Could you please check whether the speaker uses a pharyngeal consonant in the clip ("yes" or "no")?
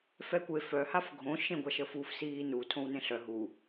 no